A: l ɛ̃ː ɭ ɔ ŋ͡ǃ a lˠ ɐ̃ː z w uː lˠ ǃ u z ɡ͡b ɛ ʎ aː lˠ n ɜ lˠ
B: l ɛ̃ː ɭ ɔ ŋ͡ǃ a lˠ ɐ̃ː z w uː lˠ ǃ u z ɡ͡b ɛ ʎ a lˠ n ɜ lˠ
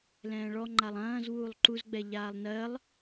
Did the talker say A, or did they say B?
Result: A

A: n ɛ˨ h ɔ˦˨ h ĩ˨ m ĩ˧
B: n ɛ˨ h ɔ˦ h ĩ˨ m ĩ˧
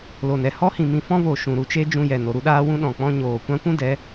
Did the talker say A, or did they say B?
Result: B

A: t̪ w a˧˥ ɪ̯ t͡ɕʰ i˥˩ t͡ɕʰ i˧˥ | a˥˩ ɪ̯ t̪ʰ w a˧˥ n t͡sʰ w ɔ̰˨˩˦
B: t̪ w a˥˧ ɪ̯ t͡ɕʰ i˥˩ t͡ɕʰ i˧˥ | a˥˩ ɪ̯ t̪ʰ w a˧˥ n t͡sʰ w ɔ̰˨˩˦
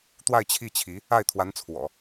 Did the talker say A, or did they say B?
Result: B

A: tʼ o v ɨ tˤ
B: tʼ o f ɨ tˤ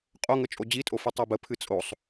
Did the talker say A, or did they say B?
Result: B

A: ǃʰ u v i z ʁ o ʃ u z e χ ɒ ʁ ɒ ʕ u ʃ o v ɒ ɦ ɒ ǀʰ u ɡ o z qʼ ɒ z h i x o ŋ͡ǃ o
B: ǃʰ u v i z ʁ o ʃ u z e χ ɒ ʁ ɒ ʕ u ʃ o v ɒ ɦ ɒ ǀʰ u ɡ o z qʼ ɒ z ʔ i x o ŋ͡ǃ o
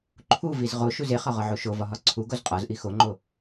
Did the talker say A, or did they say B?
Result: B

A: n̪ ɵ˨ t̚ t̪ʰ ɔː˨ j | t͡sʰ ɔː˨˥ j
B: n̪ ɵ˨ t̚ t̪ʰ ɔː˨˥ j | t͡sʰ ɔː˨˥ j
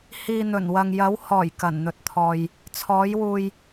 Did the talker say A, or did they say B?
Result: A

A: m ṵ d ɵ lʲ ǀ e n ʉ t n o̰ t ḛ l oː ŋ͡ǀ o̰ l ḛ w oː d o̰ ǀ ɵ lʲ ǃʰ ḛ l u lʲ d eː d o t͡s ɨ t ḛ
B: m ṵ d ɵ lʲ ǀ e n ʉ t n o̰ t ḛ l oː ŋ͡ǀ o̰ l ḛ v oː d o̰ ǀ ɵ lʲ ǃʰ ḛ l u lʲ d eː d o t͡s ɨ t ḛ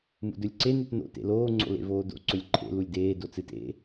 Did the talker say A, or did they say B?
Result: B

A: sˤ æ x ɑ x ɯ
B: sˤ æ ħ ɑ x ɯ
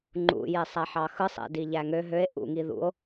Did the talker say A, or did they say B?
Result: B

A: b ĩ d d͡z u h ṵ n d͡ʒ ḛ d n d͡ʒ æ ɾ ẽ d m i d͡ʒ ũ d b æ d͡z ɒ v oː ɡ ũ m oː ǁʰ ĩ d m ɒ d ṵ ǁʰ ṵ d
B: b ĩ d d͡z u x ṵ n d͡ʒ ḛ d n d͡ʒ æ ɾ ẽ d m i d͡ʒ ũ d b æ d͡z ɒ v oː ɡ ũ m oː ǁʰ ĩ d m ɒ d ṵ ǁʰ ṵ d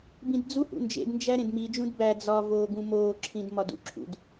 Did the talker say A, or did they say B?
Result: A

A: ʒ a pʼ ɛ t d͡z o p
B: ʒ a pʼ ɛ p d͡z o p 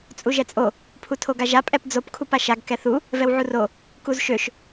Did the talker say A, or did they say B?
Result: B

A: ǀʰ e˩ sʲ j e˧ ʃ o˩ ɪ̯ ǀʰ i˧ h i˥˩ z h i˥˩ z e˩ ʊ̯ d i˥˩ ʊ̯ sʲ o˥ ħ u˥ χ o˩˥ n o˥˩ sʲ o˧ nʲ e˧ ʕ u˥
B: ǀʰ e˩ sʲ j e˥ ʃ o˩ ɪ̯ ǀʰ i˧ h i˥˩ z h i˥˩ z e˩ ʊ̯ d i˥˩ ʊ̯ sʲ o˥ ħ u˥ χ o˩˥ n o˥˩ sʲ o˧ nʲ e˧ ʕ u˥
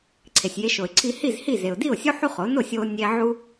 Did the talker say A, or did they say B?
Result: A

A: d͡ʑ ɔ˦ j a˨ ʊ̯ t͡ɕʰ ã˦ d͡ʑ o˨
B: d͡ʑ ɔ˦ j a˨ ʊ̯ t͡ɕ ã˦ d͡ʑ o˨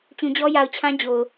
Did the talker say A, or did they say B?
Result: A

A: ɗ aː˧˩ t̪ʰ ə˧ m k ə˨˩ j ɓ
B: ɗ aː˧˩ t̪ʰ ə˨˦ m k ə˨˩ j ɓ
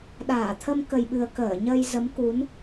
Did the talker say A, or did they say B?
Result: A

